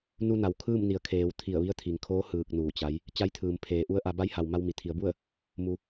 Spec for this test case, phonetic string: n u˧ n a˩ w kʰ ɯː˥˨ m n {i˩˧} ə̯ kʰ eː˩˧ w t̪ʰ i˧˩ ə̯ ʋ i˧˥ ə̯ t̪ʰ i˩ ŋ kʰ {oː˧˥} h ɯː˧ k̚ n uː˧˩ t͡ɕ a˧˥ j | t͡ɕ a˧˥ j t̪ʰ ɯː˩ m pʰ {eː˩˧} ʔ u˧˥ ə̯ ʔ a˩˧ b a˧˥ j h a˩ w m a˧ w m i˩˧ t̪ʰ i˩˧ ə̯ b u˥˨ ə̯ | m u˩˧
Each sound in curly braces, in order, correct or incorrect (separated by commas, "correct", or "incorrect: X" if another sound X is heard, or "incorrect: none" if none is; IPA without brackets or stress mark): correct, correct, correct